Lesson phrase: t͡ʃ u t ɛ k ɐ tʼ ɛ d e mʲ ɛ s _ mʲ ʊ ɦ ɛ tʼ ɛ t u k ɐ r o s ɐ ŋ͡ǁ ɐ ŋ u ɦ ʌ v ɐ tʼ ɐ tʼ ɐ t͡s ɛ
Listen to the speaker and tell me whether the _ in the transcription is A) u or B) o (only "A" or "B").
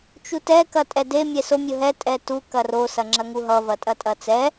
B